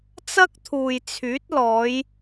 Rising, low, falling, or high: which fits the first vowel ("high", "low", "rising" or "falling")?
high